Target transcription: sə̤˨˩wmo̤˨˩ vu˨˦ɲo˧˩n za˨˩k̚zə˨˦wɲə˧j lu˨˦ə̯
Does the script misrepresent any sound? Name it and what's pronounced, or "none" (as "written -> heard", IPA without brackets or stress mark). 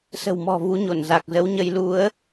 o̤˨˩ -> ɔ̤˨˩